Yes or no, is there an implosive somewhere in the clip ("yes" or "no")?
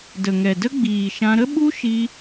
yes